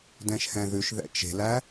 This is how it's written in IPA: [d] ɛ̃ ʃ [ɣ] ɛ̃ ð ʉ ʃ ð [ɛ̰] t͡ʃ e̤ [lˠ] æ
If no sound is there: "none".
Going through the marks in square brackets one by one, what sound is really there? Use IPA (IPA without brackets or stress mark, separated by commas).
d, h, ɛ̰, l